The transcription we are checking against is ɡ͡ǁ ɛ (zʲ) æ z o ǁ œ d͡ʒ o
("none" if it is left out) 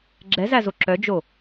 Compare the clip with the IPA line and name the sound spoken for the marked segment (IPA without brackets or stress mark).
z